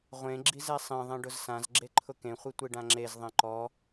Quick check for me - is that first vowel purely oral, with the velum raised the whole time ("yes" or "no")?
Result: no